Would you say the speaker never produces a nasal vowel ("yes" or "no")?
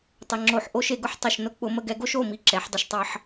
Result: yes